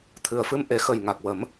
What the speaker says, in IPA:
t̪ʰ ɨ˨˩ ə̯ f ɨ˧ m ʔ e˨˩˦ x ə˨˩ j ŋ a˨˩ k̚ w ə˨˩˦ m

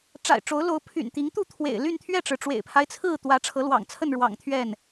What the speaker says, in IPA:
ʈ͡ʂ a̰˨˩ ɪ̯ ʈ͡ʂ o˨˦ ʊ̯ l o˨˦ ʊ̯ pʰ y̰˨˩ n t̪ i˨˦ ŋ t̪ u˥˨ t̪ʰ w ḛ˨˩ ɪ̯ l y˥˨ n t̪ʰ ɥ ɛ˥˨ ʈ͡ʂ ɻ̩˩ ʈ͡ʂ w ḛ˨˩ ɪ̯ pʰ a˦ ɪ̯ t͡sʰ ɹ̩˥˨ t̪ w ä˨˦ ʈ͡ʂʰ ɤ˨˦ l w ɑ̰˨˩ ŋ t͡sʰ ə˥˨ n ɻ w ɑ̰˨˩ ŋ t̪ʰ ɥ ɛ˥˨ n

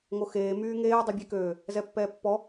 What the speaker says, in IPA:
ŋ o x eː m yː ŋ eː dˤ y bʲ e k øː | z ɛ pː ɛː pː ɔ

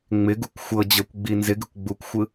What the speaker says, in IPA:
ŋ͡m ɪ ɡ u kʷ xʷ ɤ d͡ʑ ɤ kʷ ɡ͡b i n z ɪ ɡ ɪ kʷ ɡ͡b u kʷ xʷ ɯ

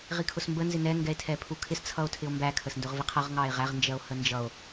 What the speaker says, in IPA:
ʁ i kʰ ʊ s m b ə n z ɪ n ɛ ŋ ɡ ɛ e̯ tʰ ɛ pʰ u kʰ ɪ s t͡sʰ ʌ o̯ tʰ ɪ o̯ m b æ kʰ ə s n d ʊ ʁ v i qʰ ʌ ʁ ŋ ɑ e̯ ʁ æ ʁ n d͡ʒ ɜ o̯ h ə n d͡ʒ ʌ o̯

